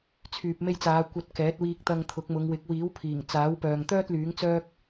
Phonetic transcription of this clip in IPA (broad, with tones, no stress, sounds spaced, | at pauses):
t͡sʰ yː˨ p̚ m e˧ j t͡s aː˨˧ kʷ ɐ˧ t̚ k ɛː˨˥ t̚ w iː˧ k̚ t̪ ɐ˧ ŋ t̪ʰ ʊ˨˥ k̚ m ʊ˨˧ ŋ w ɪ˨˥ k̚ w iː˨˥ w pʰ iː˨˩ ŋ t͡s aː˨˥ w p œː˨ ŋ t̪ œː˥ t̚ l yː˨˥ ŋ t͡s œː˥ k̚